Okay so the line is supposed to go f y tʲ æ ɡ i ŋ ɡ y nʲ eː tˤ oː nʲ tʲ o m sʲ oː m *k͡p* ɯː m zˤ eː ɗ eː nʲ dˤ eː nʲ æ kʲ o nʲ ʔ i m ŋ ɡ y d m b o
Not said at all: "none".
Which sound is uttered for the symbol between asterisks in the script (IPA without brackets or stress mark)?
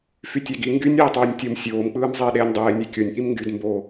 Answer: k͡p